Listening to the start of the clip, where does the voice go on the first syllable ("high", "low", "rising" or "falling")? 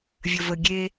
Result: low